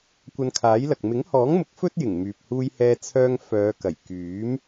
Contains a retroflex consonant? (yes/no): no